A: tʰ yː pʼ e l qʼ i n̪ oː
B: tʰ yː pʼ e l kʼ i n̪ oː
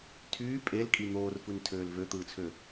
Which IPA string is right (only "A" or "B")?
B